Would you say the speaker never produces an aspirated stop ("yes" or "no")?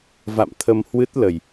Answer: no